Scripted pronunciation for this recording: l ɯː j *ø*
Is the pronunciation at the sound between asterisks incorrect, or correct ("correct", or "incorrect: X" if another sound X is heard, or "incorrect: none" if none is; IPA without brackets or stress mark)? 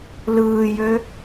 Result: correct